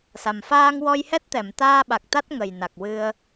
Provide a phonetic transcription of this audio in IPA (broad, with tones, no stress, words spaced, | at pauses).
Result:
sa˨˩m faː˧ŋwɔ˧jhɛ˦˥t̚ t̪ɛ˨˩˨mt̪aː˧ɓa˨˩k̚ t̪a˦˥t̚ŋə˨˩jna˨˩k̚ wɨ˧ə̯